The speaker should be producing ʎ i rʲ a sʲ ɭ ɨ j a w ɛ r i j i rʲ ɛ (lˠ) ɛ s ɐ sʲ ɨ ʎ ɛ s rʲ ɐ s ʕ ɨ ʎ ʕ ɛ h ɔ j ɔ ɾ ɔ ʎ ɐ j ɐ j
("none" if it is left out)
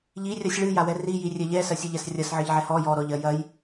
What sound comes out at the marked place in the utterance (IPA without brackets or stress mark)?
ʎ